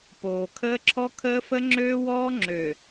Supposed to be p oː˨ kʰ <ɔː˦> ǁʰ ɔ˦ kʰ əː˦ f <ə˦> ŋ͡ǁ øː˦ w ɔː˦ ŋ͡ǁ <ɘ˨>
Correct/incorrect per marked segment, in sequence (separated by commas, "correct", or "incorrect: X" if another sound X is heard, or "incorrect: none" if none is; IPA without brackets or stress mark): incorrect: əː˦, correct, incorrect: ø˨